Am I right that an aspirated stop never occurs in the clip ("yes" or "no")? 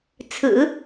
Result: no